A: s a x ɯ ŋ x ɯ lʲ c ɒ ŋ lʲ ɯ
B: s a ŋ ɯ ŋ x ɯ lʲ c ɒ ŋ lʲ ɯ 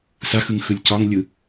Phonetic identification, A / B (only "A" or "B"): A